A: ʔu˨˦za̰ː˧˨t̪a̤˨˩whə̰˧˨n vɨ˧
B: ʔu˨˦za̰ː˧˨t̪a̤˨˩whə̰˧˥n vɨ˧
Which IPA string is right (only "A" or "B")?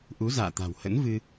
B